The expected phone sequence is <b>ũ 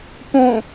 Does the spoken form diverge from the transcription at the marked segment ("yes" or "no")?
yes